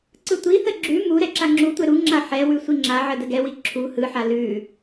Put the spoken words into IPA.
ǀɯtʷiθə ɡ͡ǁʉ mu ɾɛǁaŋ͡ǁutʷɛ ɾuŋ͡ǁa ħɛwʉ sʷiŋ͡ǁaʕə dəɡɛwi ǁʰu hɯħa lʉ

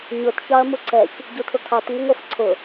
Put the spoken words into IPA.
ɲʊt çɑɐ̯muǀɛç | ɟutʰʊkʰɑt ŋəŋʷɜfǀʰʊ

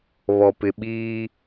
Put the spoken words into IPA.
βɔ˨pɪ˨ɓiː˦

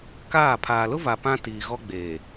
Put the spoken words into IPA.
kaː˦˨ pʰaː˨lʊ˦va˨ pã˦tiː˨ɣɔ˦ ɡ͡beː˨

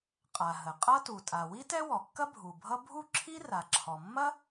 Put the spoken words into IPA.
qʼa˩ ɦə˩qʼʌ˥ tu˩tʼa˩ wi˥tɛ˥wɔ˩kːɐ˥ bʱu˩bʱʌ˥ bʱu˥ǁʰi˥ra˩ǁʰɔ˩ mːɐ˥

